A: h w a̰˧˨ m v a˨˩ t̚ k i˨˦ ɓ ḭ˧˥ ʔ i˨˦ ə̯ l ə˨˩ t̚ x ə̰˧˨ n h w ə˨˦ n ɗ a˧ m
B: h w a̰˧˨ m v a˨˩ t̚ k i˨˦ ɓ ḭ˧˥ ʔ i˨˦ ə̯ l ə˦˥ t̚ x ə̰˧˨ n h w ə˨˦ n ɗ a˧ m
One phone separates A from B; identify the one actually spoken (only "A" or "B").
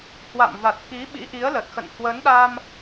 A